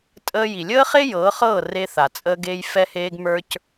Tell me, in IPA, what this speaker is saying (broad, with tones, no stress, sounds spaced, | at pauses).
tʼ əː˧ j i˩ lʲ əː˥ χ e˥ j ɤː˩˥ χ ɤː˥˩ r e˧ θ a˩ t͡sʼ əː˧ ɡ eː˧ j f ɛ˧ h eː˧ ɡ m ə˞˧ c